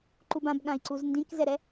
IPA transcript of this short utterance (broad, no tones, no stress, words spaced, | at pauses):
ǃubãbɠãi̯ǀuz ndĩkzɛɾɛ